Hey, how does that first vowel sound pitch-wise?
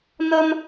high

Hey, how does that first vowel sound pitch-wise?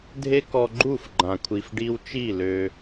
high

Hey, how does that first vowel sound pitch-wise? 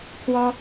high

